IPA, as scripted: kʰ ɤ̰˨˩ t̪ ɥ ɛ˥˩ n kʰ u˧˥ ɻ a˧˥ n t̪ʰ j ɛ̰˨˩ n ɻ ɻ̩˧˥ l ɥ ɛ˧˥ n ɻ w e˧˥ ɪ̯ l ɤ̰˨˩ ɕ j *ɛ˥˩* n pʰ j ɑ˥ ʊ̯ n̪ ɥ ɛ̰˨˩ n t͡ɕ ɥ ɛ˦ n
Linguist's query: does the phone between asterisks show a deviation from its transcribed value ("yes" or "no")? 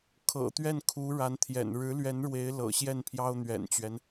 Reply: no